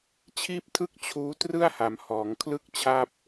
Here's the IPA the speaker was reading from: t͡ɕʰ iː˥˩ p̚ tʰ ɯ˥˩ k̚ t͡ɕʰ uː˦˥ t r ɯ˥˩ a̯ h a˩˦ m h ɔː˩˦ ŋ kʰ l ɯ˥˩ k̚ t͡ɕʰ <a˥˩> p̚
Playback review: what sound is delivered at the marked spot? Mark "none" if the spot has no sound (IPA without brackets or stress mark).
a˥˩